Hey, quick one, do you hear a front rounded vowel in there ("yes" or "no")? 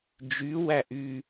yes